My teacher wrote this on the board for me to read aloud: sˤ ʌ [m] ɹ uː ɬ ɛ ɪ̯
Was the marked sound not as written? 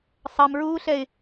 no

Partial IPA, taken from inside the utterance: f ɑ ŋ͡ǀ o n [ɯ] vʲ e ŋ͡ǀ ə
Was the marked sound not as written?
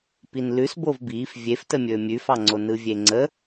no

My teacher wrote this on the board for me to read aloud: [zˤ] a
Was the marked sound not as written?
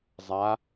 no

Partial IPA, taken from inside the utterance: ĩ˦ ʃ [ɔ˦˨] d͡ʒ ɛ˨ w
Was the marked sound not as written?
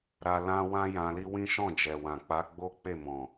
yes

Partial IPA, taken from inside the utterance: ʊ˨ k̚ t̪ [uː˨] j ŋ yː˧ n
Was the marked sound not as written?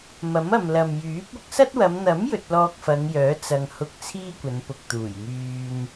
yes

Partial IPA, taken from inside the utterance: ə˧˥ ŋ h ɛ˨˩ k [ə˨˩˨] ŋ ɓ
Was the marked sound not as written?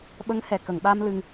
no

